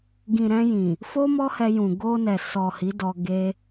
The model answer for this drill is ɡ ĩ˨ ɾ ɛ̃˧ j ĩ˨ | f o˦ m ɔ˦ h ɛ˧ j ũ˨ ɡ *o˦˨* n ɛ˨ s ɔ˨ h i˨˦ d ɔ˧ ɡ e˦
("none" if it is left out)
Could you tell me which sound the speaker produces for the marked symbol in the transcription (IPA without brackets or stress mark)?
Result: o˧